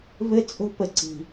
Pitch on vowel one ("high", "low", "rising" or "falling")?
high